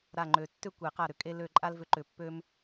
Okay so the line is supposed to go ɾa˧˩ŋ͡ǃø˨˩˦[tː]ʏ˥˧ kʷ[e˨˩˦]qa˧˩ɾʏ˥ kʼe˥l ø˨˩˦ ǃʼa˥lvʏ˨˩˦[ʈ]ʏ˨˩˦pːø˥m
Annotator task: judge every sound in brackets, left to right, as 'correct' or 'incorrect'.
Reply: correct, correct, incorrect: ǃ

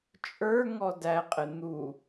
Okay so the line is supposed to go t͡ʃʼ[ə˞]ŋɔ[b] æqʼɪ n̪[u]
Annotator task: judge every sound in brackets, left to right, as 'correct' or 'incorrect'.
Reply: correct, incorrect: d, correct

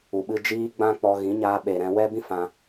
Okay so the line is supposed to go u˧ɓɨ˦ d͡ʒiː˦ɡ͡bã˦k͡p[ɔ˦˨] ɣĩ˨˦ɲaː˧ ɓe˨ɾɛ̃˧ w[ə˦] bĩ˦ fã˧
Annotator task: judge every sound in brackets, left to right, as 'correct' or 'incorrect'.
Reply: incorrect: ɔ˧, incorrect: ɛ˦

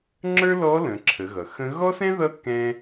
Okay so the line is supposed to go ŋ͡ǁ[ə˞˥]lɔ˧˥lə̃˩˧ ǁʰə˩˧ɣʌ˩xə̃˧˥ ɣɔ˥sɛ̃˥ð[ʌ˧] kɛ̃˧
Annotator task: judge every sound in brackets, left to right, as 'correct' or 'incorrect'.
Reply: correct, incorrect: ʌ˧˥

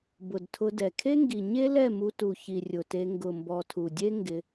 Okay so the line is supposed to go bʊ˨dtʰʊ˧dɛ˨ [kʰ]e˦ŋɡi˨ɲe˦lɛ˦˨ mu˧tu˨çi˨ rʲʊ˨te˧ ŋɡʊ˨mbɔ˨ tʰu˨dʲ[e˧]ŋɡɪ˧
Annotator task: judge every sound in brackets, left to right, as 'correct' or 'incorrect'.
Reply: correct, incorrect: e˦

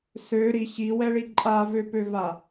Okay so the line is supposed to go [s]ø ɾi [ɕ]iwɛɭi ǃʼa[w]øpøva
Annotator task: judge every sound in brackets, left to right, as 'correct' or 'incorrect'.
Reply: correct, correct, incorrect: v

